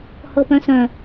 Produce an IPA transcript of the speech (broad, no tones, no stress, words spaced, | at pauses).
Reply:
hɤpœ̃sœ̃